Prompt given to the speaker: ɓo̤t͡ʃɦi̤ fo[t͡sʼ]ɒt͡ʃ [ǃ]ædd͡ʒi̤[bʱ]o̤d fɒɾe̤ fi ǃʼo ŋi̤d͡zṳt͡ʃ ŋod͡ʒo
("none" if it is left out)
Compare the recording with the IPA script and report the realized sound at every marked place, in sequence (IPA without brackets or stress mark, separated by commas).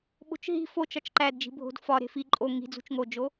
t͡ʃ, ǃ, bʱ